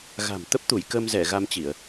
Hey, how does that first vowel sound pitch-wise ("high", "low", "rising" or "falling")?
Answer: low